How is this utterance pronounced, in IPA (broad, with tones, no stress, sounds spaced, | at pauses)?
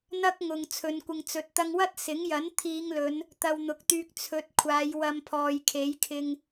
n̪ ɐ˥ k̚ ŋ ʊ˨ ŋ t͡sʰ ɵ˨˧ n kʷ ɪ˨ ŋ t͡s ɵ˨ t̚ t̪ ɐ˧ ŋ w ɐ˥ t̚ s ɪ˨˥ ŋ j ɐ˨˥ n t̪ʰ iː˨˧ ŋ l ɵ˨˧ n | t̪ ɐ˧ w n̪ ʊ˨˥ k̚ t̪ yː˧ k̚ t͡sʰ ɵ˨˥ t̚ kʷʰ aː˨˧ j w ɐ˧ m pʰ ɔː˨ j kʰ e˨˥ j kʰ ɪ˧ ŋ